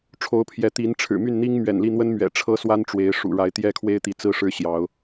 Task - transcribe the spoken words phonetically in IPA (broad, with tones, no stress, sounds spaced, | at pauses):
ʈ͡ʂʰ o˨˦ ʊ̯ pʰ j ɛ˨˦ t̪ i˨˦ n ʈ͡ʂʰ ɻ̩˨˩ m y˥˨ n n̪ i˦ ŋ m ɥ ɛ̰˨˩ n l i˥˨ n̪ w ə˦ n m ɥ ɛ̰˨˩ ʈ͡ʂʰ ɤ˦ s w a˦ n ʈ͡ʂ w e˨˦ ɪ̯ ʂ ṵ˨˩ ɻ a˨˦ ɪ̯ t̪ j ɛ˦ kʰ w e˦ ɪ̯ t̪ i˨˦ t͡s ɹ̩˦ ʂ ɻ̩˦ ɕ j ɑ˨˦ ʊ̯